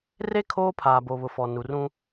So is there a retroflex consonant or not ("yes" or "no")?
no